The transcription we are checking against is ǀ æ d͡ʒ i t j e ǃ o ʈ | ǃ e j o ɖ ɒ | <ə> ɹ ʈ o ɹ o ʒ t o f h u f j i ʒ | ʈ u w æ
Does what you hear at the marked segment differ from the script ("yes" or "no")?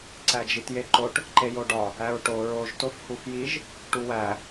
yes